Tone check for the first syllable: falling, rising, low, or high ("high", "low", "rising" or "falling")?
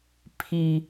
high